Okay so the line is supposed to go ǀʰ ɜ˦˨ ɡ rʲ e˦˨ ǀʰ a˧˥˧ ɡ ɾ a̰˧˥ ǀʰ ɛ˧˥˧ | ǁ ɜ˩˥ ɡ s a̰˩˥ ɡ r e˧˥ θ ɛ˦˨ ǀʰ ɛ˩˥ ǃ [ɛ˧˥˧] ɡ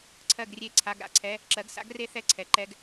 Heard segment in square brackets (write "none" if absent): ɛ˧˥˧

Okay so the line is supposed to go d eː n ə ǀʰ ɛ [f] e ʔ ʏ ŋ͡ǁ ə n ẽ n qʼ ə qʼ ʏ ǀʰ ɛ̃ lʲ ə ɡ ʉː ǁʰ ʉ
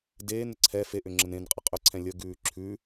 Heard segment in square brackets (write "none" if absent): f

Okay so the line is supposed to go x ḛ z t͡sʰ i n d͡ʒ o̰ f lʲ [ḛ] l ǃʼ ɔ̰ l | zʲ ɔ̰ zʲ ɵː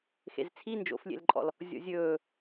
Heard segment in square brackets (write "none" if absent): ḛ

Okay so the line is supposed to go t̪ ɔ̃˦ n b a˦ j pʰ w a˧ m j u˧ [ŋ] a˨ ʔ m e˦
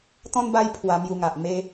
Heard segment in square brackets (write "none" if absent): ŋ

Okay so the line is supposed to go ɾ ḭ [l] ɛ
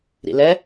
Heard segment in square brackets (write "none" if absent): l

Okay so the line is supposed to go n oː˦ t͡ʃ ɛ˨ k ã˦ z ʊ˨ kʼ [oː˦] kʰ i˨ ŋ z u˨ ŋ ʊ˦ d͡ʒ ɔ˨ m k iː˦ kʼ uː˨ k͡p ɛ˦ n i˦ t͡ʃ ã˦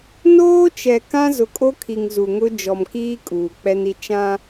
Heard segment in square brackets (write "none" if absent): o˦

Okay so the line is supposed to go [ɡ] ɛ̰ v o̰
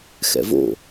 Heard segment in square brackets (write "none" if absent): x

